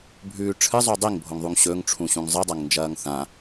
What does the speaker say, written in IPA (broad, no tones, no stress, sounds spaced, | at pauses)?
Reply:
bʱ ʉː ʈ͡ʂʰ ɨ zˤ u dˤ i ŋ bʱ o ŋ ðˤ u ŋ ɕ ɵ ŋ ʈ͡ʂʰ ũ ɕ ũ ŋ zˤ ɨ dˤ ɐ ŋ n d͡ʒ ɐː ŋ θ ã